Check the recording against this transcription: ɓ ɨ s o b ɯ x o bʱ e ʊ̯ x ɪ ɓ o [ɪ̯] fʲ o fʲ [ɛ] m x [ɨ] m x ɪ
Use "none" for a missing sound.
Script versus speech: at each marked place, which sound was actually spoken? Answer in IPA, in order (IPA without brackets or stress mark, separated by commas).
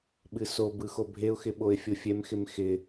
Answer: ɪ̯, ɛ, ɪ